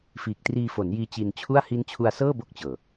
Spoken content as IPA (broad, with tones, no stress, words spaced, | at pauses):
fiː˨˩k̚triː˧fo˩˦njiː˧ t͡ɕi˧nt͡ɕʰu˥˩a̯ hi˦˥nt͡ɕʰu˧a̯sɤː˥˩ bo˥˩k̚t͡ɕɤː˨˩